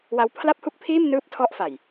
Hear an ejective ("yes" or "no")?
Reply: no